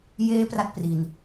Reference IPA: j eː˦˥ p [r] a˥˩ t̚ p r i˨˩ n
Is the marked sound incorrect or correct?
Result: correct